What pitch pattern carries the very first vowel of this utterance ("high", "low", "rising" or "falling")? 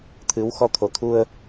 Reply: rising